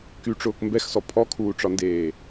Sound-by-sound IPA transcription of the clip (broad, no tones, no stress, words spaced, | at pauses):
kyʈ͡ʂʊːk mbɛxsɔ pʰɔkʰuːʈ͡ʂɒndeː